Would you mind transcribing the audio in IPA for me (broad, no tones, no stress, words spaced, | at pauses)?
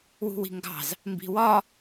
wṳwi̤ŋɡɑ̤z | mbi̤wɒ